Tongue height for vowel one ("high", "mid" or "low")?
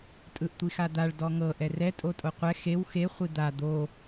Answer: high